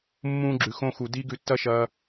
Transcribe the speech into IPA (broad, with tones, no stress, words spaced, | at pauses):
mːũː˦ ɡ͡ǁʉ˨ xõ˧xu˨ di˧ ɡʉ˧tːɐ˦ʃɐː˧